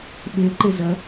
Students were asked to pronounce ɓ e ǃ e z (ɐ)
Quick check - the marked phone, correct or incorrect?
correct